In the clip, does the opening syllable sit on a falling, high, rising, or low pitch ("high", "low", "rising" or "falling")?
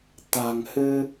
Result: low